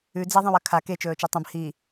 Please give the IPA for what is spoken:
ʉ d͡z e ðˤ ẽ w ɐ kʰ a k e t͡ʃ ɵː t͡ʃ e tˤ ɐ̃ b h i

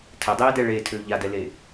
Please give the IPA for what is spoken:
tʰ ɘ dˤ eː d ɛ ɭ e tʰ ø ʎ a d ɛ l e

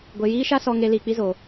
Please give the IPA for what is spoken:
ɡʷ e˧ j iː˦ ʃ a˦ s ɔ˦ ŋ e˦ l iː˧ k͡p i˦ z oː˧

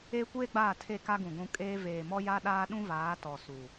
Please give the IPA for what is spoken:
eː˦ kʷ eː˦ ɡ͡b aː˦˨ tʰ e˦˨ k a˦ ɡ ũ˨ ɡʷ ũ˨ kʼ eː˦ v eː˨ m ɔ˦ j a˦ ɗ aː˦ ɗ ũ˦ v aː˨˦ t ɔ˨ s u˨

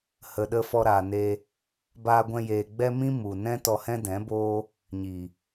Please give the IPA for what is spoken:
h ə˨ ɗ ə˧ f ɔ˧ ɾ aː˨ n e˧ | b aː˧ ɡʷ ɛ̃˧ j eː˨ ɡ͡b ɛ˦ m ĩ˦ m u˨ n ɛ̃˦ t ɔ˧ h ɛ̃˦ d ɛ̃˨˦ b oː˦ | ɲ i˨

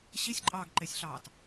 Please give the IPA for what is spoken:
ɕ i sʲ ǃʼ ɑː ɡ ǃ e sʲ ɬ ɑː t

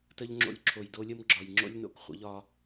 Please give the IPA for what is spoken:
t ə˧ ʎ ŋ͡ǁ o̰˧ lʲ ǁʰ o˨ j d o˧ lʲ ə˦ m ɡ͡ǁ ɒ˨ j ŋ͡ǁ o̰˦ lʲ n o̰˦ k χʷ ə̰˨˦ ʎ ɒ˧

